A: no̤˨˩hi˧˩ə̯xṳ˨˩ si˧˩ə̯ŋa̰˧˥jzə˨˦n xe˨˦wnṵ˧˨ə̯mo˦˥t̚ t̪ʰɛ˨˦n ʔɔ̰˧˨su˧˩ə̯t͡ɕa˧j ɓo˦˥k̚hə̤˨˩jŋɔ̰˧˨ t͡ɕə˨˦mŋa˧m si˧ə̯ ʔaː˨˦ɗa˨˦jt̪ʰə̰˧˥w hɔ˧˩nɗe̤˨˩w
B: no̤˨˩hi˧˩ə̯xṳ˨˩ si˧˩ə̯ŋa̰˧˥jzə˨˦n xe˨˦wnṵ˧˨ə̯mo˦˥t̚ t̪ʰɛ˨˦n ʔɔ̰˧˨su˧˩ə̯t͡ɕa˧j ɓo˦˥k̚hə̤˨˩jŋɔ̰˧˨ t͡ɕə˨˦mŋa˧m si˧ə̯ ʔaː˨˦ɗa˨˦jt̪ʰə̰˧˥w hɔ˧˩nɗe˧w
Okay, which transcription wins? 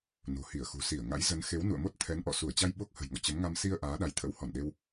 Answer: B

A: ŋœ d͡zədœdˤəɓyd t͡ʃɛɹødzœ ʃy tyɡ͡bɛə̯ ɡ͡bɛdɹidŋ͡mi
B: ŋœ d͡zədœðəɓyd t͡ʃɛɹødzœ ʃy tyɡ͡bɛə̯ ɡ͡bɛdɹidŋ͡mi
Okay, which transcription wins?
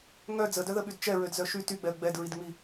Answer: B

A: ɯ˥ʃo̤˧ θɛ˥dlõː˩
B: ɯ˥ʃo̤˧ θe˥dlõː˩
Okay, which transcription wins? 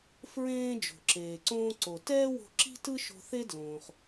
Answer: B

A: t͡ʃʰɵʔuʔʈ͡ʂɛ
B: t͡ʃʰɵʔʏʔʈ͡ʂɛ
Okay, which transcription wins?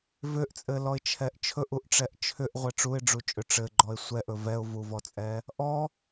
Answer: A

